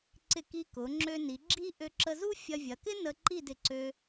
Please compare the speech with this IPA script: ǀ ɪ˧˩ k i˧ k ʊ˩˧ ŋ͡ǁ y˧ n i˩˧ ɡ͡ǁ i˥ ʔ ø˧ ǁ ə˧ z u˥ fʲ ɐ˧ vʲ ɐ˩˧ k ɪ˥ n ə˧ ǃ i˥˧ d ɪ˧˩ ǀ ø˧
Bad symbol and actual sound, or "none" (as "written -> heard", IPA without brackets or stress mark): y˧ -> ø˧